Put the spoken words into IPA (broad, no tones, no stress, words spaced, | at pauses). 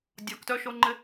dʲɒktœʃoŋ͡ǃɪ